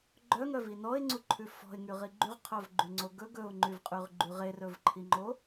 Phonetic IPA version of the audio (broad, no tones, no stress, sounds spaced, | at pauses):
ɡ͡ǃ œ ŋ œ v i n ɔ ɪ̯ ŋ͡ǀ u ǃʰ ʉ f ɔ̤ ɪ̯ ŋ y ʁ i ɡ͡ǃ y ʁ qʰ œ v ɡ͡ǃ y ŋ͡ǀ o ɡ ɵ ɡ ɵ ʊ̯ ŋ͡ǃ y v qʼ y ʁ ɡ͡ǃ y ʁ e r ɵ v ǃʰ i ŋ͡ǃ o